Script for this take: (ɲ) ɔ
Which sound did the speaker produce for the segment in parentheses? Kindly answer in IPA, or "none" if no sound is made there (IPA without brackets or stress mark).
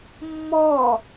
mː